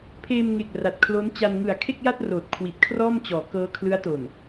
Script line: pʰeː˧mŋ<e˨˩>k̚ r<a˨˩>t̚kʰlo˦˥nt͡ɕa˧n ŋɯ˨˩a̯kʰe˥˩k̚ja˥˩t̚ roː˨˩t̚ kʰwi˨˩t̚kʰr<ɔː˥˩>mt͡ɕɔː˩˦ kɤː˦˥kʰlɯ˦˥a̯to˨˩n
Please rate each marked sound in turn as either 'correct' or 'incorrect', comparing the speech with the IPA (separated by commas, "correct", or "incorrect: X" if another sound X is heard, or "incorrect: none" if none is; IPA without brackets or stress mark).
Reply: correct, correct, correct